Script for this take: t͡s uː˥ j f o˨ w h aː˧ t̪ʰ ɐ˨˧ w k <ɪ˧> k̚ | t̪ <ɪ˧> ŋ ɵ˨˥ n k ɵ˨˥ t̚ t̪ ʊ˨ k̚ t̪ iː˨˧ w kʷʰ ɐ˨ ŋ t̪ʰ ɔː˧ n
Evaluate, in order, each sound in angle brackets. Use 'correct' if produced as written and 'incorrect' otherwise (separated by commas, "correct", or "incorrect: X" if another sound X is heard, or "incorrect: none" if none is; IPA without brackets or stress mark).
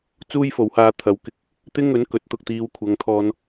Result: correct, incorrect: ɪ˥